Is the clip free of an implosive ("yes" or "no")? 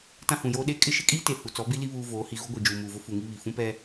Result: no